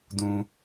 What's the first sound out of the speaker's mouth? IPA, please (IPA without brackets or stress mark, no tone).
d